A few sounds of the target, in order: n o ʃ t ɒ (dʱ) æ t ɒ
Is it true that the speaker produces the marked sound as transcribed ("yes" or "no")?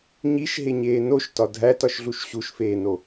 yes